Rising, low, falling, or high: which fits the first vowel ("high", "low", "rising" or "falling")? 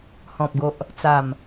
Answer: low